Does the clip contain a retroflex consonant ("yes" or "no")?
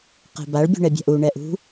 yes